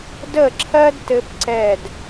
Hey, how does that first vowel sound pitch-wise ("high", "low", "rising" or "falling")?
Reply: falling